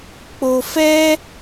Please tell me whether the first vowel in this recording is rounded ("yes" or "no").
yes